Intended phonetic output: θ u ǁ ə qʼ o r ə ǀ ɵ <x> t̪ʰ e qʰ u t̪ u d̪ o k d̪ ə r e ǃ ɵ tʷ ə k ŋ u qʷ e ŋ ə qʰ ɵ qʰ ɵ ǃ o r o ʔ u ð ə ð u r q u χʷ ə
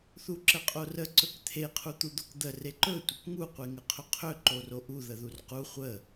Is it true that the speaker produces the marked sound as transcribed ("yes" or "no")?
no